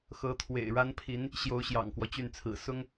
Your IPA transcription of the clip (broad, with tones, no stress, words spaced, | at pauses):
xɤ˧˥t̪ʰwḛ˨˩ɪ̯ɻa˥npʰi˧˥n | ɕjo˧˥ʊ̯ɕjɑ̰˨˩ŋkwɔ˦ t͡ɕy˥˩nt͡sʰɹ̩˨˩ sʊ˥ŋ